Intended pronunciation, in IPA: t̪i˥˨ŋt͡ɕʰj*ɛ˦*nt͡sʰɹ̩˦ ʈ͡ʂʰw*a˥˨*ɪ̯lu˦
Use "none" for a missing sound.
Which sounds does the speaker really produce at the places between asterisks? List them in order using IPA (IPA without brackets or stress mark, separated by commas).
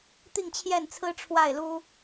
ɛ˥˨, a˥˨